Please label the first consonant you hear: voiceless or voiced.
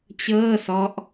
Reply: voiceless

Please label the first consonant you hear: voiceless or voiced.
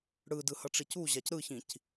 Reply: voiced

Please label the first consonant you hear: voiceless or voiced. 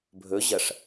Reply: voiced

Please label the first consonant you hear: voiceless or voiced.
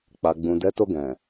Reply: voiceless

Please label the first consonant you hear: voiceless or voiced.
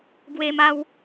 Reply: voiced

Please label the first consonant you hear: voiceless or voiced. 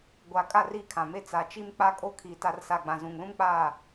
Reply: voiced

